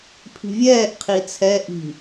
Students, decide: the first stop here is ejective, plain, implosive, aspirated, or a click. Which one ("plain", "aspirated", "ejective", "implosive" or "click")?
aspirated